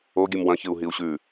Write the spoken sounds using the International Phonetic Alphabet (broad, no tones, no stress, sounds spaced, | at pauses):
o ɡʲ ɨ m w ɐ̃ ç ɨ u̯ ɦ i u̯ ɕ ʉ